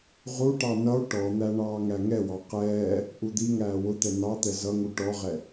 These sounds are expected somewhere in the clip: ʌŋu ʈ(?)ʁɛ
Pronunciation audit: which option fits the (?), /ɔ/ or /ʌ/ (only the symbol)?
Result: ɔ